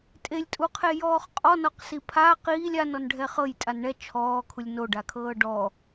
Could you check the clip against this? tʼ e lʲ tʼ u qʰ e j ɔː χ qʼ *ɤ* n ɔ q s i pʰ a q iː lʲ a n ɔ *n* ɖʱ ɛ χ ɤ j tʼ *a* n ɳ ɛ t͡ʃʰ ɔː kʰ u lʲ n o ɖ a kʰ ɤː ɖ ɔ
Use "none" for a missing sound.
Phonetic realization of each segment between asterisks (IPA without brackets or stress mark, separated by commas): ɔ, n, a